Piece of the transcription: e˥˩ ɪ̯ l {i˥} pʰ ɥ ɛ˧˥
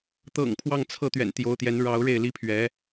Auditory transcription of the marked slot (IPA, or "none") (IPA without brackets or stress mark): i˥